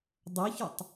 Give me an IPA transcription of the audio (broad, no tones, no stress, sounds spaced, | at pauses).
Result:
dˤ ɵ ç o tˤ